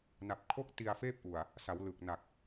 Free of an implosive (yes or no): yes